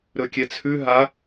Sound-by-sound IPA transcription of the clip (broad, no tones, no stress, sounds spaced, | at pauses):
ɾ ɵ kʲ ɛ t͡sʰ ʉ ɦ a